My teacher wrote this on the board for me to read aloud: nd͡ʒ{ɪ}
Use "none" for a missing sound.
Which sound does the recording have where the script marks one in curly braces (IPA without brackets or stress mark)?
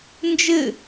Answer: ɪ